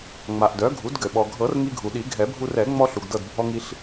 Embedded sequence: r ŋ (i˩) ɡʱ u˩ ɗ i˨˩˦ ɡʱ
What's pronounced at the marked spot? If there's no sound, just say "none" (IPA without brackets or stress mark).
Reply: i˧